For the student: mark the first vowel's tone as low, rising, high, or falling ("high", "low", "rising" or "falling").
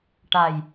low